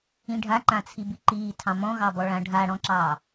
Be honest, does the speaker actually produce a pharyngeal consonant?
no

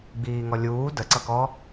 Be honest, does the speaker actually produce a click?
yes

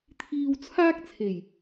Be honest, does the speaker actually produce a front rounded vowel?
no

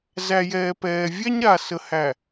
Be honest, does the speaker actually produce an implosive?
no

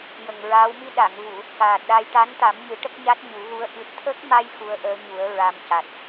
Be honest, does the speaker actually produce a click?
no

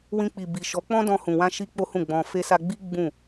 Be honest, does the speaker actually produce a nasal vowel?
yes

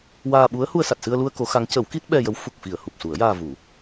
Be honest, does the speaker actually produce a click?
no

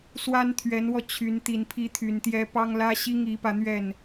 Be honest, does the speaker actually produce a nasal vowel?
no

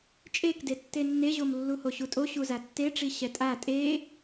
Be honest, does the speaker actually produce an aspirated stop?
no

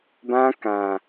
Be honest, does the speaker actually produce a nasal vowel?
yes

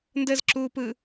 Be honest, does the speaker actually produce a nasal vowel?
no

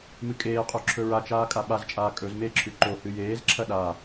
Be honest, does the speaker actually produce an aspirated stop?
yes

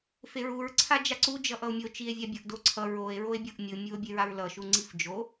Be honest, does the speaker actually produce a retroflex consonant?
no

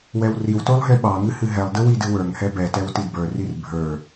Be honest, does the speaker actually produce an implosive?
yes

